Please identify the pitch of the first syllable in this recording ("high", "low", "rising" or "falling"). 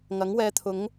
rising